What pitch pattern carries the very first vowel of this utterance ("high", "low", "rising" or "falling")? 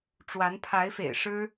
rising